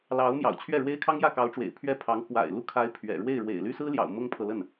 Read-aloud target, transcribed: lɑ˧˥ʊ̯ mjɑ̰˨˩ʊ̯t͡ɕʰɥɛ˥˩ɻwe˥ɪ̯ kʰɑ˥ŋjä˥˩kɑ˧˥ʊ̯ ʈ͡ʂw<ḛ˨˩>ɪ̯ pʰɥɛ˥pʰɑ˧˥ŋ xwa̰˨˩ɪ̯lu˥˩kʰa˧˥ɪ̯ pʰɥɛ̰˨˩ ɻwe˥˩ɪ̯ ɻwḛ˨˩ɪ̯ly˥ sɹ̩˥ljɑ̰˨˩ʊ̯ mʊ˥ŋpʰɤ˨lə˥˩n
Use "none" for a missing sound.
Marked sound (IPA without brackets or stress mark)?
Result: ḛ˨˩